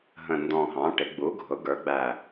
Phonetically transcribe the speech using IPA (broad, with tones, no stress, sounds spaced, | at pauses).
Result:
ɦ ə̃˨˩ n d ɔ̃˨˩ ɦ ɑ̃˩˧ ʈ ɪ˩˧ ɡ͡b u˩˧ ɡʱ ʊ˩˧ ɡ ə˞˩˧ ɡ͡b æ˨˩